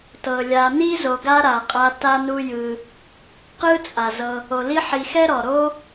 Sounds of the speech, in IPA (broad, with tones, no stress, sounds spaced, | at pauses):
t ɤ˩ lʲ a˨ n i˥ z o˨ ɡ a˦ ɾ a˨ qʼ a˦ t a˥ n u˦ j ɯ˨ | q ɯ˦ t͡sʼ a˩ z ɤ˨ | o˩ l i˦ ħ i˨ x ɛ˥ ɾ ɔ˩ ɾ o˦